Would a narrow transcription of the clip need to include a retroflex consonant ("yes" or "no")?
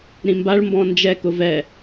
yes